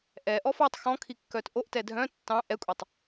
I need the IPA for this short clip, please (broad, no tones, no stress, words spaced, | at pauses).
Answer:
ʔɛʔɔf ɑtˤ xɔ̃kʰikːœt ʔoʔtɛ dʱœ̃ tːɑ̃ ʔɛkʷʼɛtˤ